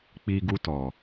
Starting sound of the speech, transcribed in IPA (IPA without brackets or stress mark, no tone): k͡p